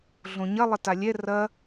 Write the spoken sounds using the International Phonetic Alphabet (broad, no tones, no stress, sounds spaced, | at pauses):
ɮ õ ɲ ɐ lˠ ɘ t a lʲ ɛ r ɐ